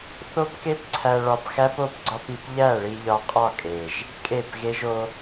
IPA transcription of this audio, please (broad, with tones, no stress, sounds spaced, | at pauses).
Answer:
θ o˦ p k e˦ p ǀʰ æ˧ ɭ ɒ˧ p x æ˦ p o˦ p ɡ͡ǀ ɒ˦ p i˧ p ʎ æ˦˨ ɭ i˧ ʎ ɒ˧ qʼ ɒ˦˨ kʼ e˨ ʒ | kʼ e˦˨ p ɣ e˦ ʒ o˧